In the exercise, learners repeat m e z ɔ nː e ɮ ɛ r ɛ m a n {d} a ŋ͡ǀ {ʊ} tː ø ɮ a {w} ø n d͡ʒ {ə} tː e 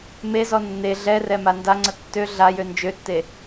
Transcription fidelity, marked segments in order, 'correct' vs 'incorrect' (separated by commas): correct, incorrect, incorrect, incorrect